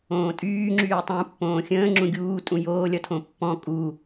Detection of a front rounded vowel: present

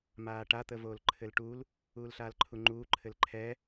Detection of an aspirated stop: present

